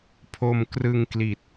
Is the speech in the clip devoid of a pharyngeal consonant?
yes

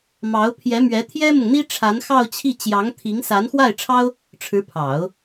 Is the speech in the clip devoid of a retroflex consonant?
no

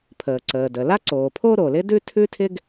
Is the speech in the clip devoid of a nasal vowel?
yes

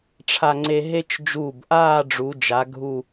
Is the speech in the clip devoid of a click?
no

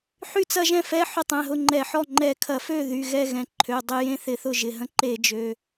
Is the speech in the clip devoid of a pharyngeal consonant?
no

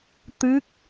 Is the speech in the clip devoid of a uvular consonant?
yes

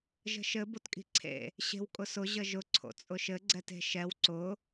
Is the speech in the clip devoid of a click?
no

